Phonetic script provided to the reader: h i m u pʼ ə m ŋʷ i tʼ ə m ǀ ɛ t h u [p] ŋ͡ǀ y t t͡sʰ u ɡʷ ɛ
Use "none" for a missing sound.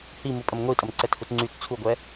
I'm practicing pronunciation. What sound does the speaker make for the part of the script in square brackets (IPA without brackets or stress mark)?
t